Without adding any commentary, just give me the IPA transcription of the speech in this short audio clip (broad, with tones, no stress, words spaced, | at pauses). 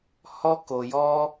hɔ˦ko˧jɔ˦